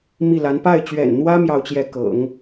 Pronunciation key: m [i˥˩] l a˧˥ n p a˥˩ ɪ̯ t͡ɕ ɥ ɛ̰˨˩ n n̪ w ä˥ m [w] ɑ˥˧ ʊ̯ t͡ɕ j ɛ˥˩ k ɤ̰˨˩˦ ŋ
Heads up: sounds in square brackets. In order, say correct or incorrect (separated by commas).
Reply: correct, incorrect